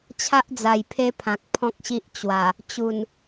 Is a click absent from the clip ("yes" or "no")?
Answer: yes